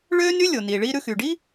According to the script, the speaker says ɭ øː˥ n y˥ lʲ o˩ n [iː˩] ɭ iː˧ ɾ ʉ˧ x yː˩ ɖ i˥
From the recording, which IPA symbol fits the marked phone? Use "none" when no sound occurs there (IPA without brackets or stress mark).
iː˩